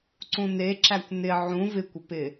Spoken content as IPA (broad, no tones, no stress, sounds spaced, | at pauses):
ǀ ũ n e ǁ æ kʷ n ɪ ʕ ũ v ɪ kʷ ə p ɪ